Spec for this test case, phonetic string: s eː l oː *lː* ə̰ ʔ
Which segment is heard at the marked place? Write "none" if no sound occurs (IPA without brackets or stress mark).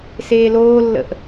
lː